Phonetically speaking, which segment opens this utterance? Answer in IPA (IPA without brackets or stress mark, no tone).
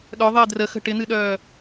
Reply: ɗ